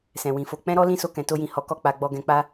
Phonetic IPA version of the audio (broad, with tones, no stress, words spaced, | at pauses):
sɛ̃˨wĩ˨fo˧ k͡pɛ̃˦ɾɔ˦ lĩ˦so˧kɛ̃˨ to˧jĩ˨ hɔ˨˦ kɔ˦˨k͡pa˧ɡ͡bɔ˧ ɡɛ̃˧k͡pa˦